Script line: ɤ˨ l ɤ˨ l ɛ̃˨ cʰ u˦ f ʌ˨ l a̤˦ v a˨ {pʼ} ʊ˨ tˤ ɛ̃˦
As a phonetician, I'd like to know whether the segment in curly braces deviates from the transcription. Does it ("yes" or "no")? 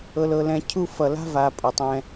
no